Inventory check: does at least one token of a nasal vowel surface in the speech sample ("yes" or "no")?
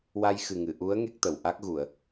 no